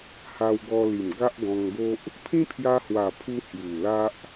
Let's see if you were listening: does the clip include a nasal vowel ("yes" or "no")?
yes